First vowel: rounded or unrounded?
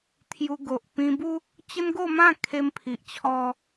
rounded